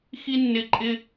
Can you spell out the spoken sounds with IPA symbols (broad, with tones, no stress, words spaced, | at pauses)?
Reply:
xi˥nːɪ˦˨ǃʼɪ˥